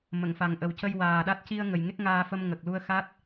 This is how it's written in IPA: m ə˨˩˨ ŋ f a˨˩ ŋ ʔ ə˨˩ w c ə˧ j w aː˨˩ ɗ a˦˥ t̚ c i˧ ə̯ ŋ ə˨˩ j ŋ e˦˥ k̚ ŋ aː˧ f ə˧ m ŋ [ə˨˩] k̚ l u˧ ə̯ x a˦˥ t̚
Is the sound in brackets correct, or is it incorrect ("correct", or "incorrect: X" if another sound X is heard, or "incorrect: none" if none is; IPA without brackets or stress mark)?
correct